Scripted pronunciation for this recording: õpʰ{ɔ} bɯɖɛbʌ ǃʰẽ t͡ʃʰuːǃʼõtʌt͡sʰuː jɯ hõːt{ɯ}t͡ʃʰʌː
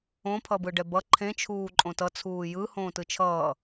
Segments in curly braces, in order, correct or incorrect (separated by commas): incorrect, correct